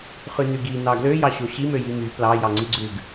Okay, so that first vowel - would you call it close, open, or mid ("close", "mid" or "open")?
close